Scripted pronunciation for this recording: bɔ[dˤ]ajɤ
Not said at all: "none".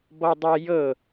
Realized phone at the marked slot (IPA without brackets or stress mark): dˤ